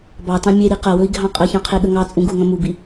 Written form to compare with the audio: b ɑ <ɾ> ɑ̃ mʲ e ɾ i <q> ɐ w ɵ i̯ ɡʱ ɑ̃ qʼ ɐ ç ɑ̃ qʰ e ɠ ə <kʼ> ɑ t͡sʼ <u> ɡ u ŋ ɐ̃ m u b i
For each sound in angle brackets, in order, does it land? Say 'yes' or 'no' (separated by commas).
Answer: no, yes, no, no